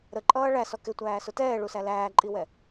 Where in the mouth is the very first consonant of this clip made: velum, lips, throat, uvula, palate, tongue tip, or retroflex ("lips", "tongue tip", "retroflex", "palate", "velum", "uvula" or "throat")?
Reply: tongue tip